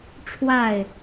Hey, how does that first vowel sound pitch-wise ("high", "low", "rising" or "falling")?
falling